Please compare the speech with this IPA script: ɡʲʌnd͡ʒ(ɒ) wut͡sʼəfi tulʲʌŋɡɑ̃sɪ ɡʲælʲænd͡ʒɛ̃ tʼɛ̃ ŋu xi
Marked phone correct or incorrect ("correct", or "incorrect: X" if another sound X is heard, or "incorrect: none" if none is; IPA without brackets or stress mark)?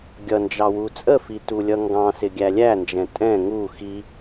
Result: incorrect: ɑ